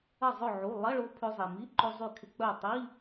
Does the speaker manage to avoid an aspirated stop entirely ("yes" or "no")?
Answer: no